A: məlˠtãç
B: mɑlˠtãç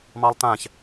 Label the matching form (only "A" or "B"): B